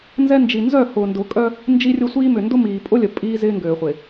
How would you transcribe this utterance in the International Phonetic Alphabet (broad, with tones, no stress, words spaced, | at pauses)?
nzɛ˦nd͡ʒi˨ nzœ˦˨hʊː˨ndʊː˨kʼœ˦ | nd͡ʒi˦rʲʊ˦sʷiː˦ mʏ˨ndʊ˦miː˨ pʼʊ˦lʲə˨ pʼiː˦zɪː˦ŋɡøː˨χʷɪː˨